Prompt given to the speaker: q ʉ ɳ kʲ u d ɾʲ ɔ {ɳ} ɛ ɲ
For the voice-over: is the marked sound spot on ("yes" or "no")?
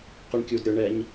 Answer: yes